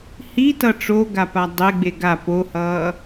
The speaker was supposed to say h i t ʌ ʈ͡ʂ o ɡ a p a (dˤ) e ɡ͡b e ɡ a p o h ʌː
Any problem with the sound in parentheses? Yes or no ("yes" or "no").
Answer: no